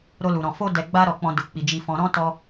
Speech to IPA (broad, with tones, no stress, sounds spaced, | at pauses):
ɾ o˧ l u˨ ɾ ɔ̃˨ f o˧ d ɛ˨ ɡ͡b a˧ ɾ ɔ˨ k͡p ɔ̃˨ d u˨ k͡p i˨ d͡ʒ i˨ f ɔ̃˨ ɾ ɔ̃˧ t ɔ˧